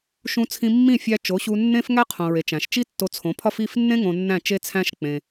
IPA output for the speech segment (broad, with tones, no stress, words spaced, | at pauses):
ʃũ˧t͡sʰĩ˧mːĩ˦˨ fʲæ˧ t͡ʃo˨˦ɕu˧ nːẽ˦f ŋæ˦qʰõ˨ɹe˨ t͡ʃæ̃˨ʃt͡ʃi˦tːo˧ t͡sʰõ˨˦pʰɒ˦f i˦˨fnːẽ˦ ŋõ˧nːæ̃˦˨t͡ʃe˦t͡sʰæ̃˦ʃ k͡pẽ˧